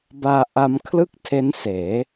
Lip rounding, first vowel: unrounded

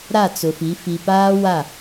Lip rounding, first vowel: unrounded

